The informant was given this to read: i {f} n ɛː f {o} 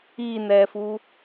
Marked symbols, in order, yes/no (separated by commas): no, no